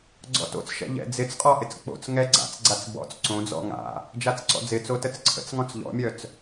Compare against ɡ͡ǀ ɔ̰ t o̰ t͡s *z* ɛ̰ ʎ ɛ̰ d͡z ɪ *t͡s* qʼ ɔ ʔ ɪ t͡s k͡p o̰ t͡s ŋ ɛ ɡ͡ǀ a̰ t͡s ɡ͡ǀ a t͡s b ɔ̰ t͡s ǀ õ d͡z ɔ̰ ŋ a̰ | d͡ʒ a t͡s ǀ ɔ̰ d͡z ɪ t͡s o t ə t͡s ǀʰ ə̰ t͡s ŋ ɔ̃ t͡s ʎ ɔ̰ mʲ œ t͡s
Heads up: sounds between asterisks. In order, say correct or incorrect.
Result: incorrect, correct

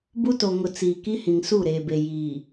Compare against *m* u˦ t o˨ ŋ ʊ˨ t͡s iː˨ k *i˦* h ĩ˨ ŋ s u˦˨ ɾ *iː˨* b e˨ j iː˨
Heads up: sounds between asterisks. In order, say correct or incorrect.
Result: incorrect, correct, incorrect

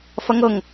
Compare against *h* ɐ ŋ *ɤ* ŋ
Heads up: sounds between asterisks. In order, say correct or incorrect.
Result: incorrect, correct

